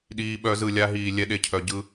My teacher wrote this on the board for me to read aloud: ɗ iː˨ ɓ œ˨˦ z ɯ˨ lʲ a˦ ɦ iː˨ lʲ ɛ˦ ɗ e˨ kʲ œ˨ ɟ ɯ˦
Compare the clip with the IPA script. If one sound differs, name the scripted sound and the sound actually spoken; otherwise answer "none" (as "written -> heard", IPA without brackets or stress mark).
kʲ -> cʰ